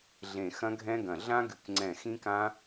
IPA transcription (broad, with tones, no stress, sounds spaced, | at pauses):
ɮ ẽ˧˩ x ɐ̃˦˥ ɡʱ ɛ̃˦˥ ɡ ɐ̃˧˩ ɮ ã˦˥ ɡ ɨ˧˩ k ŋ͡ǀ ɛ̃˧˩ x ĩ˦˥ k ã˦˥